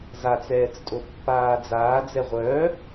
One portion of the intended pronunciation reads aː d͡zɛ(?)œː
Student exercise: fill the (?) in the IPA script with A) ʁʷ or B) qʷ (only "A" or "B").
A